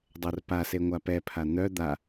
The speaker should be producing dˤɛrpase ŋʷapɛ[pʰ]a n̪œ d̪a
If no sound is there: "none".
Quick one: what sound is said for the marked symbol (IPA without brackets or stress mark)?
pʰ